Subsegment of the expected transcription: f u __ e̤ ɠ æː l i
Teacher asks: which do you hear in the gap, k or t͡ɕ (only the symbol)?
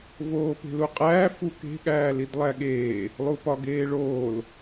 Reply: k